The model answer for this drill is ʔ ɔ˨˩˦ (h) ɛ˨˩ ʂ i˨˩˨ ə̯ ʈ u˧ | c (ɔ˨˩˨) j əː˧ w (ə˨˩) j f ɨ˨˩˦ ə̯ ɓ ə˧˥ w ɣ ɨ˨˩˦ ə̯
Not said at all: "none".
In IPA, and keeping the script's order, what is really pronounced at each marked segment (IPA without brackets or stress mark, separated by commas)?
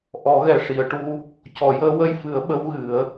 ɣ, ɔ˨˩˨, ə˧